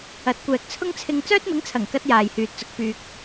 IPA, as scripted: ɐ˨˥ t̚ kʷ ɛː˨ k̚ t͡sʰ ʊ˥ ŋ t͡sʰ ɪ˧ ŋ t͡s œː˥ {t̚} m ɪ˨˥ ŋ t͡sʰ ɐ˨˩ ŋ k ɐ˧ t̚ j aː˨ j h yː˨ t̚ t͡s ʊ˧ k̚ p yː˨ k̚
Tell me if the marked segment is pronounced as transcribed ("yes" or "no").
yes